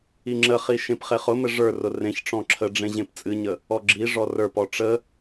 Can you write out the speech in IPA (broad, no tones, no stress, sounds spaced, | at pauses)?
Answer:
i ŋ͡ǁ ə χ i ʃ ẽ p χ e χ ʊ m ɘ ʐ ə˞ r ʊ r ẽ ç ʈ͡ʂ ɔ̃ ǁʰ ə ɖ͡ʐ ẽ ʑ ẽ p t͡sʼ ɨ ɲ ə | ɔ ɡ͡ǁ i ʐ ɔ r ə˞ p ɔ ʈ͡ʂ ə